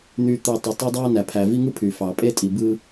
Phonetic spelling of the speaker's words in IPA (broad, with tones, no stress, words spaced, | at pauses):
n̪y˨t̪ɯ˨ tˤu˨ tˤo˦dˤɑ˦ næ˨pʰæ˨vi˦ŋɯ˦ pʰy˨fɑ˨pʼe˦ tʼi˨bɯ˦